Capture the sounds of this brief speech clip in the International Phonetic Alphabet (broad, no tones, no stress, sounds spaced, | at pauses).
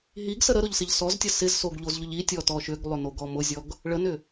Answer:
ɦ i ɡ s ə ɾ ə ɾ ʊ ʎ s ɪ ʎ s ɔ z tʲ ə s ɪ z s o ɡ ʎ o z ʎ ʊ ʎ i tʲ ɔ t ɔ ʃ ʏ ɡ lˠ ʏ n o ɡ ɔ m ʊ zʲ ɔ ɡ | ɭ ə n ʏ